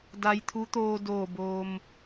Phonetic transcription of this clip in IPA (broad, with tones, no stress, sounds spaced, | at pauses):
d a˧ j t̪ʰ u˧˥ t̪ oː˧ d oː˧˩ b oː˩ m